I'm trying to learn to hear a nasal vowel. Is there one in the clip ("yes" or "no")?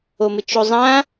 yes